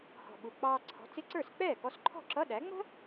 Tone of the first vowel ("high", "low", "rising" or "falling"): low